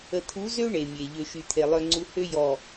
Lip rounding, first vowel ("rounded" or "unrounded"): unrounded